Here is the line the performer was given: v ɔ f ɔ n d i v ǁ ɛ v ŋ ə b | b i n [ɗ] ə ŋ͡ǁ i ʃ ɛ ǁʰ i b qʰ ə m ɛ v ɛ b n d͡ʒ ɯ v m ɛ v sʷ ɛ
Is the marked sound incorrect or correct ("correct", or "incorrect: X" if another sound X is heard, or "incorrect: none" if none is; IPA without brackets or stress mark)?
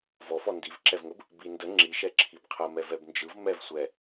incorrect: d